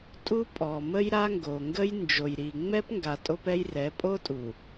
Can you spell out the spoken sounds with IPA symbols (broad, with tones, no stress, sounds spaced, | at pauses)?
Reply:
tʼ u˦ pʼ ɔ˨ m ə˦ j ɾ a˦ ŋ ɡ o˨ ŋ ɡ ə˦ j n d͡ʒ o˨ j ɾ i˨ ŋ͡m ɛ˦ p ŋ ɡ a˨ tʼ o˦ p ɛ˦ j r ɛ˨˦ pʼ o˦ tʼ u˨